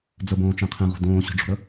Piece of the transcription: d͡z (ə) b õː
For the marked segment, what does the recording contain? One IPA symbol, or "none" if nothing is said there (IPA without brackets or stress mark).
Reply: ə